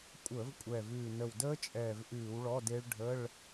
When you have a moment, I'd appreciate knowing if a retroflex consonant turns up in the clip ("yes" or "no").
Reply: yes